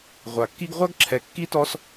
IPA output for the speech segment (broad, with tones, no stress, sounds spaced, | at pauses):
ʁʷ a˩ kː i˥ ɡ ʁʷ a˦ ɡ ǁʰ ɛ˨ kː i˥ t ɔ˦ s